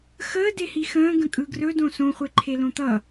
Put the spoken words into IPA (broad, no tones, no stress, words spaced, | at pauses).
xəː dehixə̃ː ɡə̃kʼɯɡrɵ dõsõ χʷeǃʰelõt̪ʌ